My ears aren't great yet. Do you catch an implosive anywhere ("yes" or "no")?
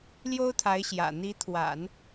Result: no